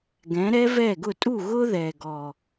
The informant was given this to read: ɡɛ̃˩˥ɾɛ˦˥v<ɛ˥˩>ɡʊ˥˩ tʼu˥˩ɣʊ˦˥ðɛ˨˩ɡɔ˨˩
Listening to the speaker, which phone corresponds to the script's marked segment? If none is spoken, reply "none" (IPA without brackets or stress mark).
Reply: ɛ˥˩